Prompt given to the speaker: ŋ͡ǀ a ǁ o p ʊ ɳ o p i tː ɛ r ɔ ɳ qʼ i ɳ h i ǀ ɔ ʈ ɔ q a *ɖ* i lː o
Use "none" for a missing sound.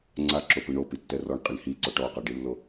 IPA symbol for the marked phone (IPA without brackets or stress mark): ɖ